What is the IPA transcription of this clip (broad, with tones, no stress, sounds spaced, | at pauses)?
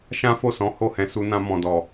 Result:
ʃ ã˦ f o˦˨ s ɔ̃˨˦ h o˦˨ h ɛ̃˧ s u˧ n ã˧ m ɔ̃˨ d ɔ˨